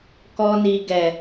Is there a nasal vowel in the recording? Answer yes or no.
no